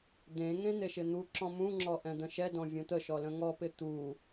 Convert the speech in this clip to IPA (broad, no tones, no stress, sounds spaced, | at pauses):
d̪ ẽ ŋ ẽ n̪ e ʃ ɪ n̪ u ǁ ɔ̃ m ũ ŋ͡ǁ ɔ ʔ ɛ̃ d̪ ə̃ ʃ ɛ d ɔ̃ vʲ õ t̪ ə ʃ ɔ l ə̃ ŋ ɔ p ɪ t̪ u